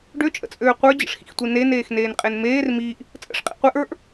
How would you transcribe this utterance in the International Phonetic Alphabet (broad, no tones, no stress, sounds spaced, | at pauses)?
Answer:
ɖ ø t͡ʃʼ ə̰ t͡sʼ øː qʷ ə˞ d͡ʑ ə̰ ʂ x ḭ x tʷ i n e n eː x n eː n qʼ e n m eː r m iː ʔ | t͡sʼ ə̰ ʂ qʼ ḭ qʷ e ʔ ə˞ ʔ